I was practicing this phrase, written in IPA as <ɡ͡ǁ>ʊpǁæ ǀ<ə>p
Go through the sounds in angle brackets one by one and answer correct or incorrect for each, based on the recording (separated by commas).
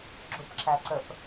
correct, correct